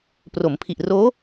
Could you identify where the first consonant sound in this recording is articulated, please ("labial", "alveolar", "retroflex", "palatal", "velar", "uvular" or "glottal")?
labial